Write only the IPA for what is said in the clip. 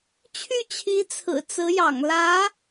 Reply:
t͡ɕʰy˥˩t͡ɕʰi˧˥t͡sʰɹ̩˨˩ t͡sɹ̩˧˥jɑ̰˨˩ŋlä˧˥

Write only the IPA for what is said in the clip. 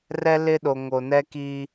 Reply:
rɛ˦lɪ˦ɗo˨ ŋo˨nɛ˦ki˦

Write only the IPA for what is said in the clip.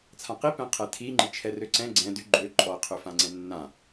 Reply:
t͡sʰãqi pɛ̃qʰɛtʰi ŋ͡ǃit͡ʃʰɛrøǀɛ̃ ɡ͡ǀɛ̃ dy ɡ͡ǃø ǃʼɔ qʰøfãŋ͡ǀɛ̃nːã

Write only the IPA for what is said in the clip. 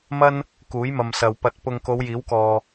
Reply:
mɐ˥n | kuː˨˥jmɐ˨msɐ˨w pɐ˨t̚ pʊ˨ŋko˨˧w jiː˨˥wkɔː˨

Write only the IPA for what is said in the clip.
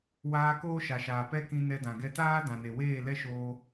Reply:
waː˧ koː˦ʃa˨ʃaː˨pɛ˦ kĩ˧nɛ˧ dã˨ɡɛ˦ taː˦ dã˨ne˨ weː˦˨lɛ˦ʃoː˧

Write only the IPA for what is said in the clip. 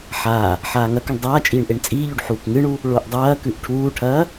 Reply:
ħaː | ħaːŋɐkʉɳ dˤaːt͡ʃʼiːɳ ʔeɳt͡sʼiːʎʉɖ ħuːkŋɨɳu | ɭoʔdˤɐːkʉʔ ʈʰuːʈʰɐː

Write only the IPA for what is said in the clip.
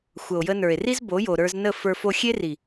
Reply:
xʷə˨o̯jə˧nə˞˨e̯ri˦z bo˨˦jo˨ ɾə˞˧znə˦˨ fə˞˧fo˧xʲe˦ ri˨

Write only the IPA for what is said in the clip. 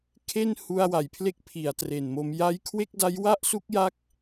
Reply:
kʰe˥˩n hu˧a̯wa˩˦jpʰle˦˥k̚ pʰi˩˦a̯tre˨˩nmo˧m ja˦˥jkʰwe˥˩k̚da˦˥j wa˥˩ʔsu˦˥k̚ja˦˥k̚

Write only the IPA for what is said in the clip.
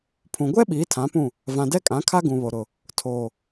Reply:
pʰũ˨ ɡʷɛ˦ ɓiː˨˦tʰã˨˦pũ˦˨ | vã˨dɛ˦kʼã˨˦kʰa˦ ɡũ˨βo˨ ɾʊ˨ | tʰoː˨

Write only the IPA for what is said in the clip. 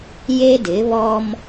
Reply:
je˦dɪ˨˦βɔ˦m

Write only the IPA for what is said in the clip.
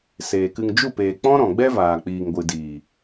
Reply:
seː˨kɨ˧ŋ d͡ʒu˦˨peː˨k͡pɔ̃˦ ɾɔ̃˨ɡ͡bɛ˦vaː˨k͡piː˨ŋ ɡʷɨ˨diː˨

